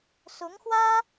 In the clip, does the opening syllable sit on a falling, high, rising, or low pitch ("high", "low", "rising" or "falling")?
rising